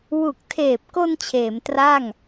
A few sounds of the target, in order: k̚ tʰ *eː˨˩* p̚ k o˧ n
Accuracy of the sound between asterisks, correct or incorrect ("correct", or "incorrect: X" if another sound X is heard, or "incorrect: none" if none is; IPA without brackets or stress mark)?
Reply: correct